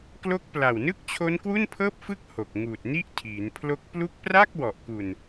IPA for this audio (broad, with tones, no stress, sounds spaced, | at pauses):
k l o˦˥ k̚ p l a˨˩ w n ɯ˥˩ k̚ t͡ɕʰ o˦˥ n k w u˥˩ n pʰ ɤː˥˩ p̚ f ɯ˥˩ k̚ h o˨˩ k̚ ŋ uː˨˩ t̚ n i˥˩ ʔ tʰ iː˩˦ n pʰ l o˦˥ k̚ p l u˦˥ k̚ p r a˥˩ k̚ w ɔ˨˩ ʔ k u˨˩ n